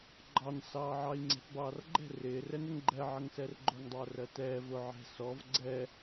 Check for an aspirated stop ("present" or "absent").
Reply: absent